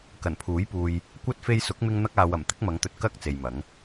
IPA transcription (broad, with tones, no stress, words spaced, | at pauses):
kɐ˨˩npʰuː˨˥jpuː˨j | kʷɐ˥t̚ fe˧jsʊ˨˥k̚mɪ˧ŋ n̪ɐ˧k̚aː˨ wɐ˨˩m t̪ɪ˨˥k̚mɐ˨˧ŋt̪ɵ˨t̚ kɐ˧k̚ t͡se˨jmɐ˨˥ŋ